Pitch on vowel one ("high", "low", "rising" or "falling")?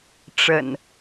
low